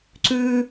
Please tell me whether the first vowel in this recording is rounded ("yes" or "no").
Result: yes